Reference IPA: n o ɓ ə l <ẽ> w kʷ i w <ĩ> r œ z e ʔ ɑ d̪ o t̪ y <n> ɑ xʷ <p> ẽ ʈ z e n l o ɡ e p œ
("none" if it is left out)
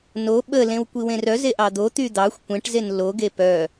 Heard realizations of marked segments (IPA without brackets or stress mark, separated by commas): ẽ, ẽ, d̪, kʷ